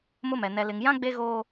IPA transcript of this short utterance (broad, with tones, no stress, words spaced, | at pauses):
mʊ˦mɛ˨ nɛ˨lɪ˨ŋjã˦ ɡ͡be˦ɣoː˦